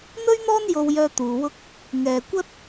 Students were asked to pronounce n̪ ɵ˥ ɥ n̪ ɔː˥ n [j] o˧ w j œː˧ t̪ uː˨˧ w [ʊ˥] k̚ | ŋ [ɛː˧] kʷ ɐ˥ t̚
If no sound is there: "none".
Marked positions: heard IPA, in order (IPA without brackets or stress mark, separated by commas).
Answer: j, ʊ˥, ɛː˨